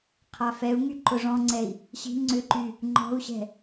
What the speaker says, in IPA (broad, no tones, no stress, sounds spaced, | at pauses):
qʰ a f ɛ u̯ ŋ y ǃ ʊ ʐ ɔ̃ ŋ͡ǀ ɛ i̯ | ɕ i̤ ŋ͡ǀ ʏ ǃ y | ŋ͡ǃ ɔ̤ u̯ ɕ ɛ̤